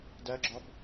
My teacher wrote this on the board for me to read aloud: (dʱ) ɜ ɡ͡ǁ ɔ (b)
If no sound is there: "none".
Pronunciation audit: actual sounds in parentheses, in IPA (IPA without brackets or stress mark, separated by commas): d, b